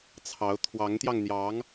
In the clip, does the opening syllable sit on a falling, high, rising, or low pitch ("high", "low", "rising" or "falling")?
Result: rising